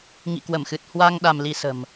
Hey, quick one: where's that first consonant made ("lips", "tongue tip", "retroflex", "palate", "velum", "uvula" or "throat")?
velum